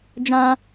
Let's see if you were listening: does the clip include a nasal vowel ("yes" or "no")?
yes